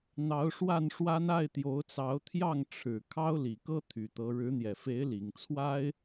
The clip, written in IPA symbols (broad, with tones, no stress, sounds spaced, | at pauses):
n̪ ɑ˨˦ ʊ̯ ʂ w a˥˨ n ʂ w a˦ n a˥˨ ɪ̯ t̪ j o˨˦ ʊ̯ t͡s ɑ˨˦ ʊ̯ t̪ʰ j ɑ˥˨ ŋ ʈ͡ʂʰ ɻ̩˨˩ kʰ ɑ˦ ʊ̯ l i˨˩ k ɤ˦ t̪ʰ y˨˩ t̪ ɤ˨˦ ɻ ɻ̩˨˦ n̪ j ɛ˨˩ f e˨˦ ɪ̯ l i˨˩ ŋ t͡sʰ w a˦ ɪ̯